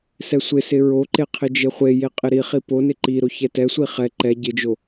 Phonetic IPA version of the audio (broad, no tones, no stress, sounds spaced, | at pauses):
s ɛ sʷ ɪ s ɪ ɹ o ǃ e qʰ ɪ d͡ʒ e χʷ e j e qʼ ɪ ɾ i χ i p o n ɪ ǃ i ɾ o ç ɛ t ɛ sʷ i χ ɛ ǃ ɛ ɟ ɪ d͡ʒ o